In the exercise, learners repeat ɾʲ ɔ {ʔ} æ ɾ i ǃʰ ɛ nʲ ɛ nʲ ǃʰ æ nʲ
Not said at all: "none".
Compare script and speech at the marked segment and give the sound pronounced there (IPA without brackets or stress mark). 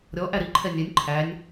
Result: ʔ